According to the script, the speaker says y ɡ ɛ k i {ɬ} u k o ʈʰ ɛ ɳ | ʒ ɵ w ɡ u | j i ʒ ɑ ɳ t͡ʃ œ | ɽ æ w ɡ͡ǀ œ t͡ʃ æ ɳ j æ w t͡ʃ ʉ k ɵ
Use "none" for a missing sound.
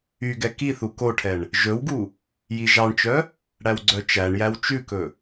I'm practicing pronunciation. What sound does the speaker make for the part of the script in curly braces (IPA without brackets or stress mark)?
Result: θ